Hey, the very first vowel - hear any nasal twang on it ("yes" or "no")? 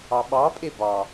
no